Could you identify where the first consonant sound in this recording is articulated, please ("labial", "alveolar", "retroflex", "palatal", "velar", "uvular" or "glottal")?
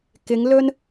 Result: velar